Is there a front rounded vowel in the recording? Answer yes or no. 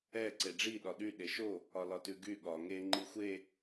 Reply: yes